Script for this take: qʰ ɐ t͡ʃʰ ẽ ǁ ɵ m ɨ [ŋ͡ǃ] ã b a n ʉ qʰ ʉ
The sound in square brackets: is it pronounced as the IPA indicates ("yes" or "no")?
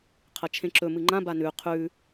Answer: yes